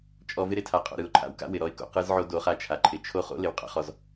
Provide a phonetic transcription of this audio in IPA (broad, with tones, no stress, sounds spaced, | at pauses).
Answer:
t͡ʃʼ ɔ˧ v ɪ˦ ɾ ɪ˧ tʰ a˨ qʼ o̰˨ ɾ ɯ˨ ʊ̯ ǃʰ a̰˨ w k a̰˦ w ɪ˨ ɾ ɔ˧ ɪ̯ k o̰˨ q ɯ˧ z ʕ o˧ d o˨˦ χ a˧ t͡ʃʰ a˨ ǃʰ ɪ˨ t͡ʃʰ o˦ χ o̰˦ l ɪ˨ w qʼ a̰˦ χ ɔ˧ z